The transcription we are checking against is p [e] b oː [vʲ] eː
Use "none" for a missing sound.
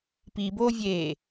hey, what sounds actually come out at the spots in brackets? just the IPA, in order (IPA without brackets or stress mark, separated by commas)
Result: i, vʲ